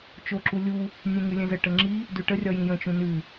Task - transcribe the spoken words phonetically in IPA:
t͡ʃ o ǁ u lʲ u | nʲ ɛ̃ ŋ ʉ lʲ ɛ̃ z ə ʈ ə ŋ͡ǁ i | d ʉ ʈ ə rʲ ɒ j ĩ j ə̃ t͡ʃ ũ n ʉ

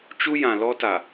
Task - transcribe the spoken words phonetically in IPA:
t͡ʃ u˦ j ã˨ l ɔ˦ t a˨

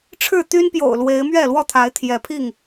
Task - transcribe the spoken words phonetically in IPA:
ʈ͡ʂʰ ɻ̩˥˨ t̪ y˦ n p j o̰˨˩ ʊ̯ l w e˨˦ ɪ̯ m ɥ ɛ˥˨ l w ɔ˥˨ t̪ʰ a˨˦ ɪ̯ t̪ʰ j ɛ˨˦ pʰ i˥˨ ŋ

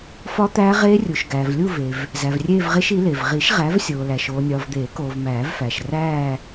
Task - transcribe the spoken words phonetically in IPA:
f ɒ˦˥ t̪ æː˦˥ ʁ eː˦˥ rʲ u˨ ʃ ɡ æː˨ v lʲ u˥˧ v e˨ v | z æ˨ v rʲ eː˥˧ v ʁ e˦˥ ʃ i˨˥ l e˨ v ʁ i˨˩˦ ʃ ʁ æ˨˥ v sʲ oː˨ l æ˨ ʃ oː˨ nʲ ɒː˨ v d̪ eː˨˩˦ k oː˨ v m æː˨˩˦ v f æ˨ ʃ r æː˥˧

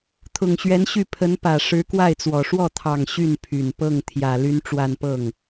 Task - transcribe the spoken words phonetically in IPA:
t̪ʰ ʊ˨˩ ŋ ɕ ɥ ɛ˧˥ n ɕ y˥˩ pʰ ə˧˥ n p ä˨˩ ʂ ɻ̩˧˥ k w a˥˩ ɪ̯ t͡s w ɔ˨˩ ʂ w ɔ˥˩ t̪ʰ ɑ˨˩ ŋ ɕ y˥˩ n pʰ y˨˩ n p ɤ˥˩ ŋ t̪ʰ j ä˨˩ l y˥ n ʈ͡ʂ w a˥˧ n p ɤ˥˩ ŋ

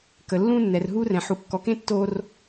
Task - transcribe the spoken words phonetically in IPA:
k ə˩ lː ũ˧ nː ɛ˩ r ɦ u˧ r ɛ̃˩ ħ u˩ kː ɔ˩ k ẽ˧ tː o˧ r

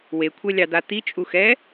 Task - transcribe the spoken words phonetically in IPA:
w e kʷʰ ɛ lʲ ɑ d̪ a t̪ i t͡ʃʼ u x ɛ

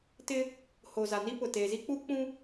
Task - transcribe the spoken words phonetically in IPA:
t ɪ˦ | h oː˨ z a˨ n i˦ p ʊ˨ t eː˨ z i˦ k͡p uː˦ k͡p ũ˦

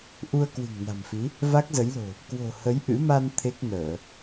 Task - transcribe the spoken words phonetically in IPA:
ʔ u˧ ə̯ k w ɨ̤˨˩ ŋ n a̤˨˩ m f i˨˦ | v a˦˥ k̚ z ə˨˦ j l o̤˨˩ | k w o̤˨˩ h ə˨˦ j ʔ ɨ̰˧˥ m a˧ n t̪ʰ e˦˥ k̚ n əː˧˩˨

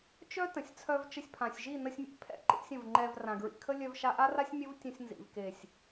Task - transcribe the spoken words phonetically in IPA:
t͡ʃ œ˦ t ə̃˨ sʲ t͡sʰ œ˧ v t͡ʃ ə˧ sʲ pʰ ã˨ sʲ ʒ i˦˨ n ə˧ sʲ mʲ ɛ̰˧ pʰ ɛ̰˧ ǃ ḭ˧ sʲ ə̃˨ v ŋ͡ǃ ɛ˨ v r ã˨ ɡ ɹ ḭ˨ kʰ ə˦ lʲ œ˧ v ʃ a˧ ʔ a˦ r a˦ sʲ mʲ ə˦ v tʲ ə̃˧ sʲ n z ḭ˨ v k e˨ sʲ

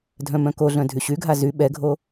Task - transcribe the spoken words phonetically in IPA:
dʱ œ̃ m œ̃ k o ɮ œ̃ dʱ y ɕ y ɡʱ a z y ɓ ɛ ɡʱ o

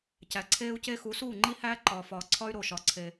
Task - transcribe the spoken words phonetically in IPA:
c æ˨ ǀʰ eː˦ u̯ c e˦ x u˨˦ s uː˦˨ ŋ͡ǃ i˦ h æː˦ ǃ ɒː˨ f ɒː˨ ǀʰ ɒ˦ y̯ ɾ o˦˨ ʃ ɒ˦ ǀʰ e˦

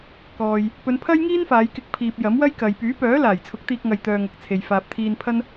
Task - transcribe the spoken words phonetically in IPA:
k ɔː˧ j | p ɵ˨˧ n pʰ ɐ˥ j ŋ iː˥ n f aː˨˧ j k ɪ˧ k̚ pʰ iː˨ p̚ j ɐ˨˥ m w ɐ˥ j k ɐ˨ j p yː˨˥ p œː˨˥ l aː˨˩ j t͡sʰ ʊ˨˥ k̚ t̪ iː˧ k̚ ŋ ɐ˧ j t̪ œː˧ ŋ ɐ˨ k̚ t͡sʰ e˨ j f aː˨ p̚ t̪ʰ iː˧ n pʰ ɐ˥ n

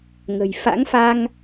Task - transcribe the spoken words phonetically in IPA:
ŋ ə̤˨˩ j f a̰˧˥ ŋ f a˧ ŋ

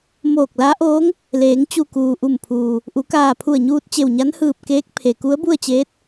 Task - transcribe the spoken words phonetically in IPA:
m oː˧˩ k̚ l a˧˥ ʔ oː˧˥ ŋ | l eː˩˧ ŋ t͡ɕ u˧˩ k uː˩ ʔ u˧˩ m pʰ uː˩ | ʔ u˩˧ k aː˧˩ pʰ u˧˩ ə̯ ɲ uː˧ t̚ t͡ɕ e˧˩ w ɲ a˧˥ n h ɯː˧˩ p̚ k eː˧˥ k̚ pʰ e˩ k u˧˥ ə̯ b u˥˨ ə̯ t͡ɕ eː˧˥ t̚

